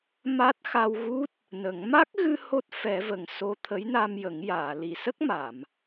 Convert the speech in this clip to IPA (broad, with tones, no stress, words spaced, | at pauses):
ma˦˥t̚ xa˧wɣu˦˥t̚ | nə˨˩˦ŋ ma˦˥k̚ɣɨ˧ ho˦˥t̚ fɛ˨˩˦və˨˩ŋ so˧t̪ʰə˧˥jna˧mjə˨˩˦ŋ jaː˨˩˨ li˨˩˨sə˦˥k̚ma˨˩˨m